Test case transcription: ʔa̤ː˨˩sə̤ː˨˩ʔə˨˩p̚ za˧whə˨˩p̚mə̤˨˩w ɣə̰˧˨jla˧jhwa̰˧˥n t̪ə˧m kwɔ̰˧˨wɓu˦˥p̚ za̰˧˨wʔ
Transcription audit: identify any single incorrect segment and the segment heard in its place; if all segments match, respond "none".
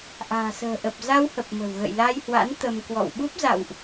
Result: none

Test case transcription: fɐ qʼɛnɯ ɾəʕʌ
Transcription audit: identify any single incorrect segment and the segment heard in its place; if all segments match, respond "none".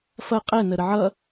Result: ɯ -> ə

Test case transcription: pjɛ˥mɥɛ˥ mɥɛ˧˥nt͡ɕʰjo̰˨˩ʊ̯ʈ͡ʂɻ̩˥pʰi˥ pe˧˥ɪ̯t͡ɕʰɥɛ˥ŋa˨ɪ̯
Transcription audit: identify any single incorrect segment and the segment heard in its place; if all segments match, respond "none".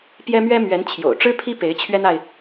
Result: ŋ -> n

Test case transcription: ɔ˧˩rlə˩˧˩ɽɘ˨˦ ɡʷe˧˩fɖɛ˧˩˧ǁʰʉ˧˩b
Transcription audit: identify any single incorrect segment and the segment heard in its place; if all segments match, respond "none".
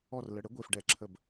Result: ʉ˧˩ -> ə˧˩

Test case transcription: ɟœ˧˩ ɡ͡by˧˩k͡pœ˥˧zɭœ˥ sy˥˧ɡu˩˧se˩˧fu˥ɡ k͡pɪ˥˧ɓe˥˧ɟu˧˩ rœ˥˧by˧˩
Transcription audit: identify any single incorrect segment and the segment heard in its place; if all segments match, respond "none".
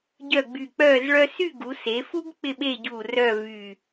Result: b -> v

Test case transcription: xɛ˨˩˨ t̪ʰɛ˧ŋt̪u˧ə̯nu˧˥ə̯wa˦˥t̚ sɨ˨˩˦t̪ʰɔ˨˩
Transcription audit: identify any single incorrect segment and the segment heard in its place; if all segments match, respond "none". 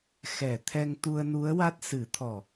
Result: none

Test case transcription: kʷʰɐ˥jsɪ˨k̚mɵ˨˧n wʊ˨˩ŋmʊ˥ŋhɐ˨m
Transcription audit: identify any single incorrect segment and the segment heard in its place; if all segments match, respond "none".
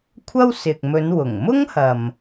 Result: j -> w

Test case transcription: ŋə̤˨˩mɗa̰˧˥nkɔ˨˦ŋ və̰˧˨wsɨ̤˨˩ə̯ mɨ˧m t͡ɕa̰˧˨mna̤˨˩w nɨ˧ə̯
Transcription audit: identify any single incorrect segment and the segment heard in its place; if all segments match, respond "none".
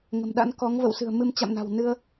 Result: none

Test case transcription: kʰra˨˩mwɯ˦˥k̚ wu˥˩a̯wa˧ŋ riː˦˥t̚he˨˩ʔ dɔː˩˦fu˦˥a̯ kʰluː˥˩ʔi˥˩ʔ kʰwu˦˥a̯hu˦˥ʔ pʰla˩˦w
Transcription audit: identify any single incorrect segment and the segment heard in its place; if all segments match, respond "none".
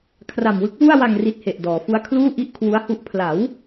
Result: iː˦˥ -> i˦˥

